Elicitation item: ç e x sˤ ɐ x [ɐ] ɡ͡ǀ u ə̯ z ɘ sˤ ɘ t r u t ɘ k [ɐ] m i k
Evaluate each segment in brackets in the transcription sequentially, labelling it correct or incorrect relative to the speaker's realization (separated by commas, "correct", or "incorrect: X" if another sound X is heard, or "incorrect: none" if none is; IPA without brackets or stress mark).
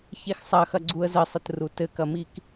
correct, correct